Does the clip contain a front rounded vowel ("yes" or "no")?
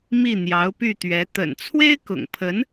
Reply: yes